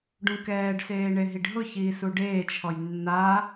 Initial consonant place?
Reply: retroflex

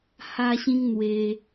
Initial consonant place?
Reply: glottal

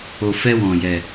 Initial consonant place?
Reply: labial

